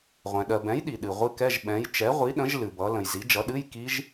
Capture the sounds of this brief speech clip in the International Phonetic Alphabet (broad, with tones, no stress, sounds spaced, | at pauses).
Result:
ʁʷ ɛ̃˨ ɗ ɜ˨ b ɛ̃˨˥ j ɗ i˨ ɗ ɨ˨ ʁʷ ɨ˦˥ k ɛ˧˥˧ ʒ ɓ ɛ̃˨˥ j t͡ʃ ɛ˨˥ ʁʷ i˨˥ ɗ ə̃˨˥ ʒ l ɨ˨ b ʌ˨˥ l ə̃˨ j z i˨˥ d͡ʒ ʌ˨˥ ɗ ɨ˧˥˧ j k i˦˥ ʒ